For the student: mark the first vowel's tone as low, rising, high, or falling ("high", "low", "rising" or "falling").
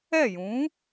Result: falling